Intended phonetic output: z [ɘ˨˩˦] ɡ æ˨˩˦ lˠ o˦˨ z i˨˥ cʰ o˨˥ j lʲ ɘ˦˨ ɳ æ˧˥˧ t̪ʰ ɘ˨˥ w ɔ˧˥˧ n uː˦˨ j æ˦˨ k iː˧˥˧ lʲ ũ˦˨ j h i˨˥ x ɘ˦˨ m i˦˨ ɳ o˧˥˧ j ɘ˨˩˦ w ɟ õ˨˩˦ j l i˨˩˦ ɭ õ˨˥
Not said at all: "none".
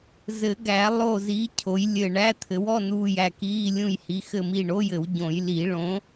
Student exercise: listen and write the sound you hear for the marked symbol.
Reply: ɘ˨˩˦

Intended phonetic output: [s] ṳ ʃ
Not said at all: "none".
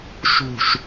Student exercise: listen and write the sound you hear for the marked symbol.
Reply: ʃ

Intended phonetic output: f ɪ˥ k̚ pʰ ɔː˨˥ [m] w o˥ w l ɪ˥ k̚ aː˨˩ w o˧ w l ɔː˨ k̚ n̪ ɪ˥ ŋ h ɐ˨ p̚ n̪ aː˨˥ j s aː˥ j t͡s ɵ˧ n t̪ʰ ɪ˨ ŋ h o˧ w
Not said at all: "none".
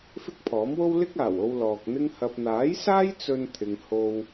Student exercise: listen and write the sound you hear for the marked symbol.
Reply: m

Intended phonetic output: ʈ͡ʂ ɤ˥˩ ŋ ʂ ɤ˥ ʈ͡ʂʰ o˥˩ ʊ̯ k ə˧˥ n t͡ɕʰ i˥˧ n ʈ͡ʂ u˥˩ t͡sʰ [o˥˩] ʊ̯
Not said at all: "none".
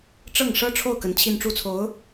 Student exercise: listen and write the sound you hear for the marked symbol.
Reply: o˧˥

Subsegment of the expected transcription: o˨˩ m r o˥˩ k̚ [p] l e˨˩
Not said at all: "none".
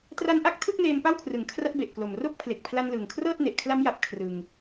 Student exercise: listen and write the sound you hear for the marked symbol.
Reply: pʰ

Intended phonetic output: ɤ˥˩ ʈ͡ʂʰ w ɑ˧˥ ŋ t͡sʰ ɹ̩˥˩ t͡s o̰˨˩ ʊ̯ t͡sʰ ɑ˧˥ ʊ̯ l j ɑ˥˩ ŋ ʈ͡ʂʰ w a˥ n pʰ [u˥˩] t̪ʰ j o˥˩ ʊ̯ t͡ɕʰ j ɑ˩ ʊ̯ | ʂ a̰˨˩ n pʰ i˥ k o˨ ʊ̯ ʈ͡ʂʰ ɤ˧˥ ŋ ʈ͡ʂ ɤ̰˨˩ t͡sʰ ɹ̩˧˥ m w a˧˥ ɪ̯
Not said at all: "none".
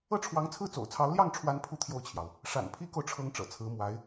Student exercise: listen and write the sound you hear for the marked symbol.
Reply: u˥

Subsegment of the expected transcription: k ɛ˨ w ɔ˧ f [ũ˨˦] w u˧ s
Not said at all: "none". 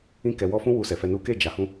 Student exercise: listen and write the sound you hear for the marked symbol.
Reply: ũ˦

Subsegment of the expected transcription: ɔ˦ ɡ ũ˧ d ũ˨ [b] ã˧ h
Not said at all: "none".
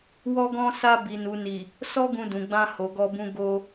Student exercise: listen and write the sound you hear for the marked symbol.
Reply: ɡ͡b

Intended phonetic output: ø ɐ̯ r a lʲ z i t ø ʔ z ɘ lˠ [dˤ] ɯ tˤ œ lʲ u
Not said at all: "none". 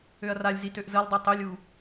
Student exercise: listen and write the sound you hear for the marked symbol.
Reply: dˤ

